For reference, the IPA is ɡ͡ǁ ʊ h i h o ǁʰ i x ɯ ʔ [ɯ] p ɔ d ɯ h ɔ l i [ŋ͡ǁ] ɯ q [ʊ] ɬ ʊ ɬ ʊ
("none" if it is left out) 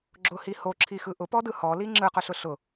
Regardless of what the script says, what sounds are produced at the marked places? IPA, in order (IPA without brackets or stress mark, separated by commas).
ʊ, ŋ͡ǁ, ʊ